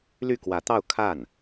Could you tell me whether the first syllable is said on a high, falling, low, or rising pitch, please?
falling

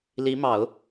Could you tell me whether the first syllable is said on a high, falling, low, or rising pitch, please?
rising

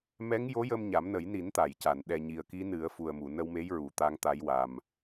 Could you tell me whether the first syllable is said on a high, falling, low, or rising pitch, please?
rising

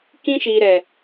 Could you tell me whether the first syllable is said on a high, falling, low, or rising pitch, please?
high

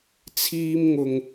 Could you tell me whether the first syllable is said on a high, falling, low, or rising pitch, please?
high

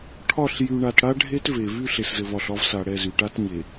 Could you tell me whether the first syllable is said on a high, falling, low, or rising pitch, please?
falling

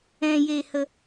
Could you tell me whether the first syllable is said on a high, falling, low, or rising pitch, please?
low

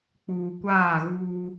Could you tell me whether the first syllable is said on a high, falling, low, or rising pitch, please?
low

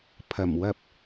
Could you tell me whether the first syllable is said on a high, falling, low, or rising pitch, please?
low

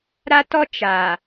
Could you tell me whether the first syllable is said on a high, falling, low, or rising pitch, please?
high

